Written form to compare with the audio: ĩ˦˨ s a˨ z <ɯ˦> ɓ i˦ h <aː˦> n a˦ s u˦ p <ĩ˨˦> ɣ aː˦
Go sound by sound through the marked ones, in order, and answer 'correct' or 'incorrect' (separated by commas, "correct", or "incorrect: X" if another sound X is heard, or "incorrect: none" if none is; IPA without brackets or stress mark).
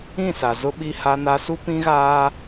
incorrect: ʊ˦, incorrect: a˦, incorrect: ĩ˦